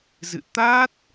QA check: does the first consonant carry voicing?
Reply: yes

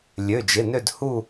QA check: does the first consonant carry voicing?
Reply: yes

